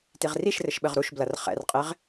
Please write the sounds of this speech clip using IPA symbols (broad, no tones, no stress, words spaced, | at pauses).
tiʁriʃrɘʃ ɓɘʁɾuʃblɐr χɛ̰rqʼeʁ